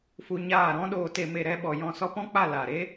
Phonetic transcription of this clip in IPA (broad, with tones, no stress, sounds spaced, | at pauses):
f u˧ ɲ aː˦˨ ɾ ɔ̃˦ ɗ oː˨ t e˨ m e˨ ɾ ɛ˧ ɓ ɔ˨ j ɔ̃˦˨ s ɔ˦ p ɔ̃˦ k͡p a˦˨ l aː˨ ɾ e˦